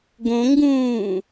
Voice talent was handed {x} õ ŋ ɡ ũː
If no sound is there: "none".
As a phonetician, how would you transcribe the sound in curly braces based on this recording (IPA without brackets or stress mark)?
ɡ